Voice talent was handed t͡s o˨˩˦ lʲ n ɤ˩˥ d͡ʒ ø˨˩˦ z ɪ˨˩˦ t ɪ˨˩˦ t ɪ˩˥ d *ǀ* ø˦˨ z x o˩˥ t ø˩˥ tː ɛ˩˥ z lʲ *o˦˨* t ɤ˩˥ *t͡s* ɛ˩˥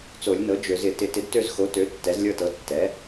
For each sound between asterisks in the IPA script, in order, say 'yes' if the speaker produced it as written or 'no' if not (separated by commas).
no, no, no